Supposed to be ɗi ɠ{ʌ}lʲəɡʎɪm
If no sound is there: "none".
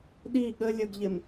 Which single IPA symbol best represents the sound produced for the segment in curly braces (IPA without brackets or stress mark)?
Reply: ə